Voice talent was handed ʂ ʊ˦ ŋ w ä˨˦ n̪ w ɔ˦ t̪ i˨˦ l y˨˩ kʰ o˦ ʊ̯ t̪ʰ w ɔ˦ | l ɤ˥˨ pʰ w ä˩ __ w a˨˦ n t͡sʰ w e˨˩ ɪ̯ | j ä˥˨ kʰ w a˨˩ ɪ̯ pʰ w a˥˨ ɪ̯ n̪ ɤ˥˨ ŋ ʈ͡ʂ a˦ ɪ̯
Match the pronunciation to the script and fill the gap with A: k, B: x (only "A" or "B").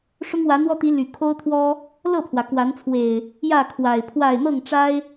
A